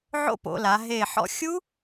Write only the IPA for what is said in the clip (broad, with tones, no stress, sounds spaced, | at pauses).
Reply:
ʕ o̰˦˥ p o̰˩˧ l a˩˧ ɦ e˧˩ ħ ɔ̰˧ xʲ u˦˥